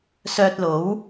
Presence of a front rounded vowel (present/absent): present